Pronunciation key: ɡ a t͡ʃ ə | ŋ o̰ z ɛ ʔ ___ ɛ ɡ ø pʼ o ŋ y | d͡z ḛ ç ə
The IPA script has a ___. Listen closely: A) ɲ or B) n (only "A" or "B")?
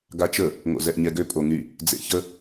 A